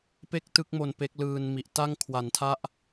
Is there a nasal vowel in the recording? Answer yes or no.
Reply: no